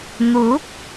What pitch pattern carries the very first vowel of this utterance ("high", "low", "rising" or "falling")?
rising